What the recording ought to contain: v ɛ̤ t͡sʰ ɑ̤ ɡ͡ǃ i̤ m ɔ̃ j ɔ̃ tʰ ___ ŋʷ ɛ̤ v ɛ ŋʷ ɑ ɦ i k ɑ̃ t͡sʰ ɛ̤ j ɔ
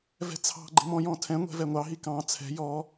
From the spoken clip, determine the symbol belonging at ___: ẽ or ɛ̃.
ɛ̃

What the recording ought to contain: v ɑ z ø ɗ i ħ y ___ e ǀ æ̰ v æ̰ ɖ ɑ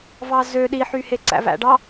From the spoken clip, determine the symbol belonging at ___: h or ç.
h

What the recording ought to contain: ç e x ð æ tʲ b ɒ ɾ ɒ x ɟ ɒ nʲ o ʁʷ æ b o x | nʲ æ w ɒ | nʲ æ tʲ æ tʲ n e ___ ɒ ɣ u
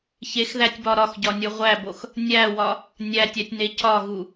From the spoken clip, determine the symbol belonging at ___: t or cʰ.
cʰ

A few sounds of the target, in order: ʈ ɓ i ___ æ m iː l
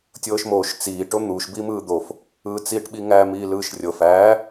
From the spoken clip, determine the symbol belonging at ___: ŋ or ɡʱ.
ŋ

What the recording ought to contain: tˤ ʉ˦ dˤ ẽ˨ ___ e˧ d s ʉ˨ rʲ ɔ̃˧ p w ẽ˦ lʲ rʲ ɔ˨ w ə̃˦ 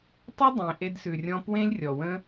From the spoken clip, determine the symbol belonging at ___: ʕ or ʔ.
ʔ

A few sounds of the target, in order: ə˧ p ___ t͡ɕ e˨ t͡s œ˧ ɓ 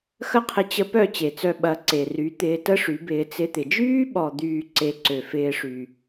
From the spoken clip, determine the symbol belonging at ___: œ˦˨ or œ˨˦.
œ˦˨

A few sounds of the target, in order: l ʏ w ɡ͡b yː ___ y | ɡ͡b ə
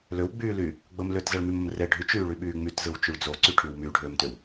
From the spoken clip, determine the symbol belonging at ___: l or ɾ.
l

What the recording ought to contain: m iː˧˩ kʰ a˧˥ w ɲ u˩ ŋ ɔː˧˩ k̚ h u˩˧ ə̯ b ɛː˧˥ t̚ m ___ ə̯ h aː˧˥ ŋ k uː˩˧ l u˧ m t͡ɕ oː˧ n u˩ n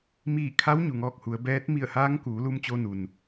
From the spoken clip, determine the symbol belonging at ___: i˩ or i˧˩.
i˧˩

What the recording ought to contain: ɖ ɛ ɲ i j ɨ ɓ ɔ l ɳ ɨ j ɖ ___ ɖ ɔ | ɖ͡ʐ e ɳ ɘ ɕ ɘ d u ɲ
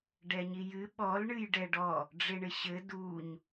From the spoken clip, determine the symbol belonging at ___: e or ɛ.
ɛ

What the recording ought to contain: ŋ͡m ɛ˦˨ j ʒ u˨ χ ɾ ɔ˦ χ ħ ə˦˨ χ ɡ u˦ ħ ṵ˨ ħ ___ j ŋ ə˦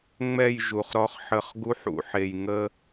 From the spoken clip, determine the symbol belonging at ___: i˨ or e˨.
e˨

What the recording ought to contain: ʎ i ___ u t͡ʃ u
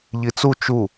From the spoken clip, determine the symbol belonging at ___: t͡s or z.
t͡s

